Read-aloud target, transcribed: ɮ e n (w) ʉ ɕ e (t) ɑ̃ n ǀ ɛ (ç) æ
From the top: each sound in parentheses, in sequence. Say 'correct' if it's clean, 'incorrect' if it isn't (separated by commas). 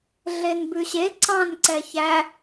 incorrect, incorrect, correct